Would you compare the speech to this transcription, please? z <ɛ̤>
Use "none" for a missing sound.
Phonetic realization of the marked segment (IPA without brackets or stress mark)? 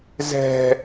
ɛ̤